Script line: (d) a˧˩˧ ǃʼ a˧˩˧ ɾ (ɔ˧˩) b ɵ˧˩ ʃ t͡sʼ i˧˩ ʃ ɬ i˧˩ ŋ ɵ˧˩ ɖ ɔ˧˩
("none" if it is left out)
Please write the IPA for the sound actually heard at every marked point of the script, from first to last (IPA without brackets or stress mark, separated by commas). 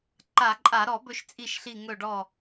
ǃ, ɔ˧˩˧